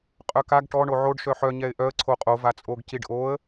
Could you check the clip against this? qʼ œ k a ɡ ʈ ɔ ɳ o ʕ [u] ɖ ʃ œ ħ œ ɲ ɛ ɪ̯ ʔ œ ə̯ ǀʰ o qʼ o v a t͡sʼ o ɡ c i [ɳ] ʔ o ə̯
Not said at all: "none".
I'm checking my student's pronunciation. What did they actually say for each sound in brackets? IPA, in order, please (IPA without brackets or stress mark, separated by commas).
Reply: o, ɖ